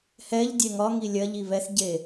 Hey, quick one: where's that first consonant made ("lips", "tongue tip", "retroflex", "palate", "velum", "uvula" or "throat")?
throat